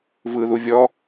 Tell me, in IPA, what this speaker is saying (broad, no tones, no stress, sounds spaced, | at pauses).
v ɯ ð u vʲ ɔ